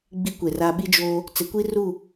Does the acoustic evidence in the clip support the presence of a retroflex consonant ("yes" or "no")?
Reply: no